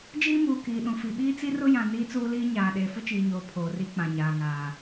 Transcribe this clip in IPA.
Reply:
d͡ʒ iː˦ m uː˨ k iː˨ ɗ ũ˨ f i˨ ɓ iː˦ t͡s i˦ r ʊ˦ j ã˨ n iː˦ t͡s uː˦ l iː˦ ɲ aː˨ ɗ eː˨ f ʊ˦ t͡ʃ iː˨ ɲ oː˨ pʰ oː˨ r i˦ k͡p ã˨ ɲ aː˨ ŋ aː˨

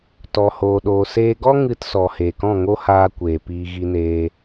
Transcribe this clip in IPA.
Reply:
t ɔ˧ h oː˧ ɗ oː˧ s eː˧ ɡ ɔ˦ ŋ ɨ˧ t s ɔ˨ h eː˨ k ɔ̃˦˨ ŋ o˦ h aː˧ kʷ eː˨ p iː˧ ɣ i˧ n eː˧

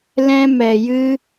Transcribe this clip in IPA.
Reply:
l ɛ̃˧ m ɛ˨ j ɨ˧

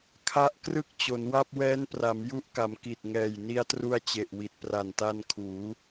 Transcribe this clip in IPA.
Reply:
kʰ a˦˥ ʔ k r ɯ˦˥ k̚ t͡ɕ o˩˦ n w a˥˩ p̚ w ɛː˦˥ n p r a˩˦ m j u˦˥ ʔ k a˩˦ m k i˨˩ t̚ ŋ ɛː˨˩ j n i˧ a̯ t r u˧ a̯ t͡ɕ e˨˩ ʔ w i˨˩ t̚ p r a˨˩ n t a˧ n kʰ uː˩˦

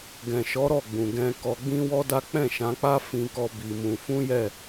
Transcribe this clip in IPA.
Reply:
ɡ ɛ̃˨ ʃ ɔ˨˦ ɾ ɔ˦˨ ɡ͡b ũ˨ ɡ ɛ̃˧ k ɔ˧ ɡ͡b ĩ˦ w ɔ˦ d a˦ k͡p ɛ̃˦˨ ʃ ã˨˦ k͡p a˦ f ĩ˦ k ɔ˦ b i˧ m ũ˧ f ũ˦ j ɛ˦˨

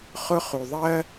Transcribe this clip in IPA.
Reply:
χ ʊ˥ χ u˧ ðˤ ɜ˥

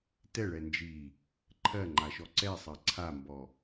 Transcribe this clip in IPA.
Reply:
t ɛ ɭ ɛ n d͡ʒ i | ǃʰ ɜ ŋ͡ǃ a ʃ ɔ ǀ ɛ sˤ ɜ ǀʰ a m b ɔ

